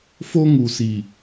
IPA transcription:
f o˦ ŋ u˨ s i˨

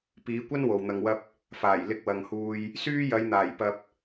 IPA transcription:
p iː˨˧ kʷ ɐ˥ n w o˨ w n̪ ɐ˧ ŋ w ɐ˥ p̚ | f aː˨˩ j l ɪ˧ k̚ w ɐ˨ ŋ h uː˧ j | s yː˥ j ɐ˨˧ j n̪ aː˨˩ j p ɐ˧ p̚

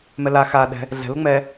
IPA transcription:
m ɛ l a x a ɗ ɛ̤ | ɮ ɛ̤ l ʊ ŋ͡m ɛ

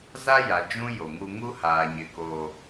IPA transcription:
z a˦ j a˨ d͡ʒ ũ˦ j o˨ ŋ u˦ ŋ u˦ h aː˨ ɲ ɪ˨ k o˨

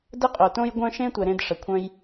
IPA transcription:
d ə˥ qʼ o˨ t õ˥ j ɡʷ œ̃˥ ʃ ẽ˥ tʷ ɛ˨ ɾ ẽ˥ d ʂ ə˨ kʷʰ œ̃˥ j

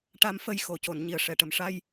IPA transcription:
ʈ a˧ m f ə˧ j x o˨˩˨ c o˨˩˨ n ɲ i˨˩˨ ə̯ ʂ ɛ˨˩˨ ʈ ə˨˩ m ʂ a˧ j

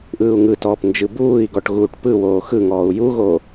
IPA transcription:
ʔ ɯː u̯ ŋ ɯ t ɔː p n d͡ʒ ɯ b uː i̯ ɡ ɔ ʈ ɣ uː ʈ p ɯ w oː x ɯ ŋ ɔː u̯ j u ɣ oː

